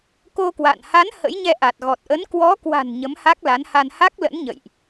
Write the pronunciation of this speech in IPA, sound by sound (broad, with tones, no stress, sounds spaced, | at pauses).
k o˧ k w a̰˧˨ n h a˨˦ n h ə̰˧˥ j ɲ ɛ˧ ʔ a˨˩ t̚ ɣ ɔ˨˩ t̚ ʔ ə˨˦ n k w ɔ˨˦ k w a̤˨˩ n ɲ ə˨˦ m h a˦˥ k̚ l a˨˦ n h a˧ n h a˦˥ k̚ l ə̰˧˥ n ɲ ə̰˧˨ j ʔ